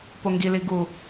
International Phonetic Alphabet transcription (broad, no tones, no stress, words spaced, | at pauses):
poŋɡi liɡu